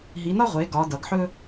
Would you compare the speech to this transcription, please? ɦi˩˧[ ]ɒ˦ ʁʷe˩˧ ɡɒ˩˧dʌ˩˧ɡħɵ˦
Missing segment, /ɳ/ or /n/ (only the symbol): n